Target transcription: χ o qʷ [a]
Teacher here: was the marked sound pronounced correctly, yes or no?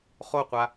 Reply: yes